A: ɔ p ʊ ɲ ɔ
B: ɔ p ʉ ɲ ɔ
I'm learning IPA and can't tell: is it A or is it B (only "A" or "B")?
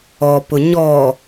A